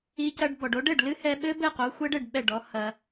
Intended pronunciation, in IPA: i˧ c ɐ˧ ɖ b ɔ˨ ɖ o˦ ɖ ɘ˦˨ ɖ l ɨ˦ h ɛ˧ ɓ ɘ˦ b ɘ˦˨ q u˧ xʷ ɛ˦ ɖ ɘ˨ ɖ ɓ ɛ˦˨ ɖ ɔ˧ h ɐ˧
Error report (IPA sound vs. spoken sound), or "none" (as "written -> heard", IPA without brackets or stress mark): u˧ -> o˧